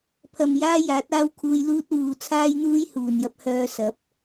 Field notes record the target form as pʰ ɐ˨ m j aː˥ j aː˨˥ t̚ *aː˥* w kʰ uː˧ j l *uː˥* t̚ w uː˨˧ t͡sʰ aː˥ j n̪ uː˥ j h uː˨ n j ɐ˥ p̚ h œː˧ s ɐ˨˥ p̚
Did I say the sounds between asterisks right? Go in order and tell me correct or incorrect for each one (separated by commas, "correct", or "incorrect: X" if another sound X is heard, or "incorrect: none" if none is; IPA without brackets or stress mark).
correct, correct